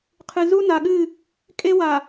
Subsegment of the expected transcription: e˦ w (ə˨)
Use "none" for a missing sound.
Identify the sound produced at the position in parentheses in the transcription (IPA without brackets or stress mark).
a˨